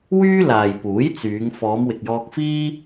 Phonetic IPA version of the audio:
w yː˥ l aː˨ j p uː˨˥ j t͡s yː˨˧ ŋ f ɔː˨˧ m w ɪ˨ k̚ j ɔː˧ k̚ f iː˥

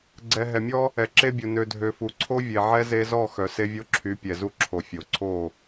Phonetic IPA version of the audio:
ɡ͡ǀ ɛ˨ ɦ ɛ˨ mʲ ɔ˦ | ɛ˨ ǁ e˦ bʲ u˨ n ø˨ dʱ ø˨ f u˨ ǀʰ o˦ vʲ e˨ ʕ ɛ˦ z e˦ z ɔ˦˨ x œ˨ s e˦ vʲ o˦ ǁʰ y˨˦ pʲ ɛ˨ z u˦ ǁʰ o˨ fʲ o˨ ǀʰ o˦˨

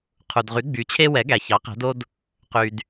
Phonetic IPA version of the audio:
qʰ u˩ d ʁ y˩˥ ɡ͡b y˩˥ t͡ɕʰ e˥ w ɛ˩˥ ɡ æ˩ ç ɑ˩˥ q æ̤˩˥ d o˥ d | q y˩ d

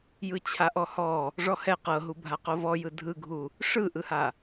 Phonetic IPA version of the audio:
j ɯ t͡ɕʰ a ʔ ɔ h ɔ | ʐ ɔ h ɛ q ɤ ɦ u bʱ a q o v ɔ j ɯ dʱ ɯ ɡʱ u | ʂ ɯ ʔ ɯ h a

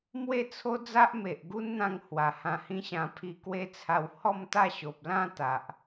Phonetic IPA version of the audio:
m w e˥˧ t͡sʰ o˦ d͡z a˦ ʔ m e˨ ʔ ɡ u˦ n n̪ ã˧ ŋ h w a˨˩ h ã˧ h ĩ˦ ɕ ã˧ pʰ i˧ k w e˦ t͡sʰ a˧ w h ɔ˥˧ m t̪ a˥˧ ɕ o˨ p̚ l ã˥˧ t̪ a˨ ʔ

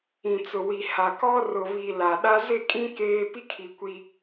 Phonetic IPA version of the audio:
ĩ˨ t͡s ʊ˨ w i˨ h a˨ k ɔ˦ r ʊ˨ β i˨ l a˨ ɗ a˦ z ɪ˦˨ kʼ ĩ˦ k eː˦ p i˦ kʰ i˨ kʷ i˦

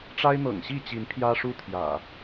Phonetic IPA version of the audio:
ʈ͡ʂ a˦ ɪ̯ n̪ ɤ̰˨˩ ŋ ɕ i˥˨ t͡ɕ i˨˦ n pʰ j ä˦ ʂ u˦ t̪ʰ j ä̰˨˩

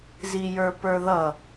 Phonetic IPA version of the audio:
z i j ə˞ p ə˞ ð ʌ

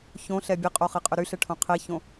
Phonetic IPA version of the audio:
ç õ ɬ ɛ bʲ e qʼ o χ e qʼ ø ɾ y ɬ ɛ ʈʰ õ qʰ e ç õ

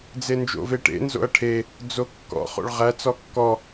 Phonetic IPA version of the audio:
d͡z e n d͡ʒ o̰ v e ʈ ḛ n z o̰ ɐ̯ ʈʰ e | d͡z o kː ɔ̰ χ o̰ ɭ ʁ æ t͡s ɔ kː ɔ

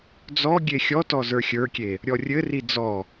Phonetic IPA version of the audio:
d͡z ɔ ɡʲ e xʲ ɔ t ɔ z ə˞ xʲ ə˞ kʲ e | ɾʲ ɔ rʲ ɘ r i d͡z ɔ

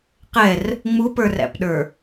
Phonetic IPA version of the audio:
q ɛ r | ŋ͡m u p ə˞ r æ̰ p ɗ ə˞

